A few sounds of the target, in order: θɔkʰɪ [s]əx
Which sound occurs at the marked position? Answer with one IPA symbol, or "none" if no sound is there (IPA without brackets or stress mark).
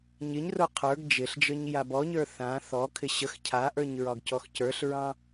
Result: ɕ